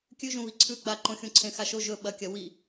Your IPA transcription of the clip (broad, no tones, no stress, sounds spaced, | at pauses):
kʲ ʉ ʒ ũ β i ǀʰ ʉ ɡ͡b a ǃ õ xʲ ũ ǀʰ ẽ x a ʃ o ʒ ɵ ɓ ɐ kʲ ɐ w i